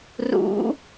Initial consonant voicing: voiced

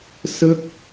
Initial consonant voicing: voiceless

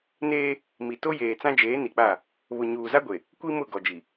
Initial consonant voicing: voiced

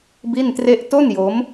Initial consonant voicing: voiced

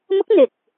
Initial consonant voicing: voiced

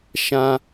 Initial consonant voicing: voiceless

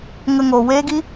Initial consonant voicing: voiced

